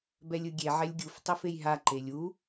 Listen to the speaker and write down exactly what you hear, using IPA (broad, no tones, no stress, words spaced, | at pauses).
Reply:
bɛlʲɯɡʲe ʕɛlʲɡʲuf tˤifejɦa ǃelʲu